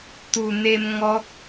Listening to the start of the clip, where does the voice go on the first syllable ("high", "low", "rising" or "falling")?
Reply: low